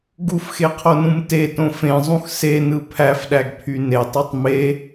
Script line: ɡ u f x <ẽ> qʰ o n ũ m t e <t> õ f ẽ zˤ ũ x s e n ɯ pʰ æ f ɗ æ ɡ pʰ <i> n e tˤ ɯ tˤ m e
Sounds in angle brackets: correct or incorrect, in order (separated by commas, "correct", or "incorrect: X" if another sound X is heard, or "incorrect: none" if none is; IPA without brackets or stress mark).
incorrect: e, correct, incorrect: y